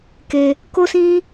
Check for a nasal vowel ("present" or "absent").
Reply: present